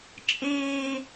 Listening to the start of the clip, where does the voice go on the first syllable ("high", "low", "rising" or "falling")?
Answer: high